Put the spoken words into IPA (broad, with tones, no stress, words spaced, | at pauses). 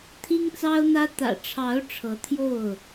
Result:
t̪ʰi˦ŋt͡sɑ˦ʊ̯n̪ä˦ t̪ä̰˨˩ʈ͡ʂʰɑ˨˦ʊ̯ ʈ͡ʂʰɤ˨˦t̪ʰjo˥˨ʊ̯